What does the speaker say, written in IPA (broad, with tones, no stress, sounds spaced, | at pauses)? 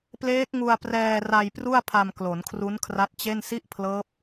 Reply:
p l eː˦˥ k̚ ŋ u˧ a̯ p r ɛː˧ r a˧ j p r u˥˩ a̯ pʰ a˧ m k l o˩˦ n kʰ r u˦˥ n kʰ r a˦˥ t̚ t͡ɕ e˥˩ n s i˥˩ ʔ pʰ l ɤː˦˥ p̚